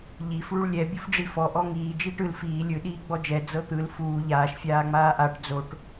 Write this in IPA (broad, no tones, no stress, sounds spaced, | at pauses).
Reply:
ʎ i f ɭ u ɭ lʲ ɛ bʲ u f ɖ͡ʐ i f ɔ ʔ ɔ ŋ iː d͡ʒ iː ʈ ɯ l f iː lʲ ɯ ɗ iː ɡ͡b ɔ d͡ʒ ɛ d͡z ɤ t̪ ɯ l f uː ʎ aː ʃ fʲ aː ŋ͡m aː ʔ a ʈ d͡z o ʈ